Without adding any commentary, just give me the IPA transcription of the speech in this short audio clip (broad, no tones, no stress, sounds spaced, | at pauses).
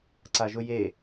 ǀ a ʒ ʊ j e